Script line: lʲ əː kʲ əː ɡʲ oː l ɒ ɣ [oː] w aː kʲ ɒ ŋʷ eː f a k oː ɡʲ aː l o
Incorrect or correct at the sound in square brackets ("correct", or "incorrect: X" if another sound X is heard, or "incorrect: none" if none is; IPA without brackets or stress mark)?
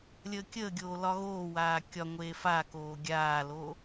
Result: correct